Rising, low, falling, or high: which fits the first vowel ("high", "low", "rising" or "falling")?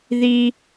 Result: high